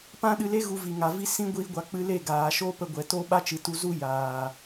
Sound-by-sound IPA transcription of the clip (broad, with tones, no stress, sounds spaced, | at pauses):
p ã˦ ɗ ɨ˧ l e˦ ɣ u˧ v i˨ ŋ a˨ v i˦ s ĩ˦ ɡʷ iː˧ ɡʷ a˨ k͡p ɨ˧ l e˦˨ ɡ aː˨ ʃ o˦ p ə˧ ɡʷ ɛ˨ t o˦ ɓ a˦ t͡ʃ ɨ˨ t u˧ z u˦ j aː˨